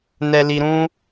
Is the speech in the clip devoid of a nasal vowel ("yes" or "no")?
no